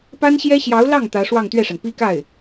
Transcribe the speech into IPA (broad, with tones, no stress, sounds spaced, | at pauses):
p a˥ n ɕ j ɛ˥ ɕ j ɑ˧˥ ʊ̯ l ɑ˥˩ ŋ t̪ ä˧˥ ʂ w ɑ˥˧ ŋ t̪ ɥ ɛ˥˩ ʂ a˩ n p i˥ k a˥˩ ɪ̯